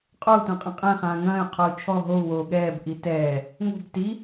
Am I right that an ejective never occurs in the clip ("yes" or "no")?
no